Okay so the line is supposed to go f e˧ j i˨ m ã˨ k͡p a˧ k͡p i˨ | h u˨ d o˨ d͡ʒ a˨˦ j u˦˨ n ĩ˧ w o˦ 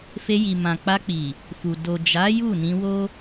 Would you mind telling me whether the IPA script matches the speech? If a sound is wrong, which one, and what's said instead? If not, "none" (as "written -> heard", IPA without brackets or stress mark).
h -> f